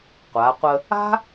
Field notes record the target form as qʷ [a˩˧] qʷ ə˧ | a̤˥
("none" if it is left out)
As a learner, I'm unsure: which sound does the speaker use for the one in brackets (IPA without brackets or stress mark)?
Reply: a˩˧